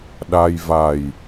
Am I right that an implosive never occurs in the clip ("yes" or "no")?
no